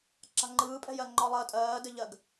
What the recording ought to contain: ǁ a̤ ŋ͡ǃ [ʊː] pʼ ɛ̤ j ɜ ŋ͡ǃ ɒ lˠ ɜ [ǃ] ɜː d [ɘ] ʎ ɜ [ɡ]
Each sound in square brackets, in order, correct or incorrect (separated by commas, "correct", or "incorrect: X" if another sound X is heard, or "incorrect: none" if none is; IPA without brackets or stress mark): incorrect: ɯː, incorrect: tʼ, correct, correct